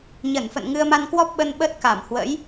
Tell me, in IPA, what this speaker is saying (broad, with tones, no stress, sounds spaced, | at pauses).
ɲ ə˧˩ n f ə̰˧˨ n ŋ ɨ˧ ə̯ m a˧ n k w ɔ˦˥ p̚ ɓ ə˧ n ɓ ə˦˥ t̚ k a˧˩ m h w ə̰˧˥ j